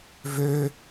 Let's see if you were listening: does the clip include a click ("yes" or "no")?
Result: no